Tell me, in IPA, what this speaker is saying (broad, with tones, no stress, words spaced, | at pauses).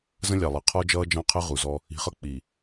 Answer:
zə̃˦lʲɑ˨lˠɛ˨ qʰɔ˦d͡ʒʌː˦d͡ʒɑ̃˦qʰə˦ ʁu˨zɔ˦ | i̤˨χʌ˦ k͡pi˨